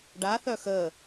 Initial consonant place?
retroflex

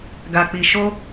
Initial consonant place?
velar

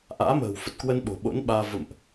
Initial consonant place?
glottal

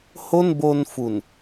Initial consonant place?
glottal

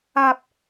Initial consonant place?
labial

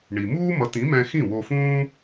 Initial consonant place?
retroflex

